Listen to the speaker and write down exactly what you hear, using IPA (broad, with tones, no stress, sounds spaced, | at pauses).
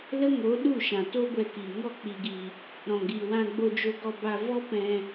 l ə˦ ŋ o˨˦ ɗ u˦˨ ʃ ã˨ t o˦ ɡʷ ɛ˧ k i˨ ŋ ɔ˦˨ k͡p i˨ ɡ i˨ | ɾ ɔ̃˨ ɡ i˨ w ã˧ ɡ͡b o˧ d͡ʒ o˧ ɡ ɔ˧ b a˧ v ɔ˦ p ɛ̃˧